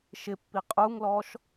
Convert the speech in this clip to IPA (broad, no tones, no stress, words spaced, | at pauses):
ʃɪpːi qʼuŋlɔʃ